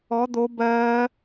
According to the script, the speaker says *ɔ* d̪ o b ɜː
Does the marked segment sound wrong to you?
no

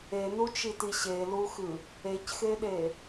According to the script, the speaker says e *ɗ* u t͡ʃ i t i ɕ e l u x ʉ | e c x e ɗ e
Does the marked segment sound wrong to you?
yes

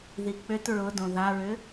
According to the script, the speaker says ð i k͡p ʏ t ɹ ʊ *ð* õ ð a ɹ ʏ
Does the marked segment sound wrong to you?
yes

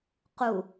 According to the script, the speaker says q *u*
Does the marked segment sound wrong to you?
no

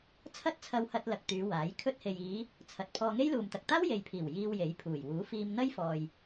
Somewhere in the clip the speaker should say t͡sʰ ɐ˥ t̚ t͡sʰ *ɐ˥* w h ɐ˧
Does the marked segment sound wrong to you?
yes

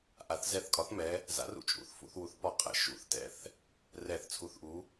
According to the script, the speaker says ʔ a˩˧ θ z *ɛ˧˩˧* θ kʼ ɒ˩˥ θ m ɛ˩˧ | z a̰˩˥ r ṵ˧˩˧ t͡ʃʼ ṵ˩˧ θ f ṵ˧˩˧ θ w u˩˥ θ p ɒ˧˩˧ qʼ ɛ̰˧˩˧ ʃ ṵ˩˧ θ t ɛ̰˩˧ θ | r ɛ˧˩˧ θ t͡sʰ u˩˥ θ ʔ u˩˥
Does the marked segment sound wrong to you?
no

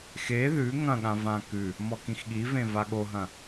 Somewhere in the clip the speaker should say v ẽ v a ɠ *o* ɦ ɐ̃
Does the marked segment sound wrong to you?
no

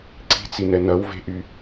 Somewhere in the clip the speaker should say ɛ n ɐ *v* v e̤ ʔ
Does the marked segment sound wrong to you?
yes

